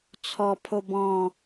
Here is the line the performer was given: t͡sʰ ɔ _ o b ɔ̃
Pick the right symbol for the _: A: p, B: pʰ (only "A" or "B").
B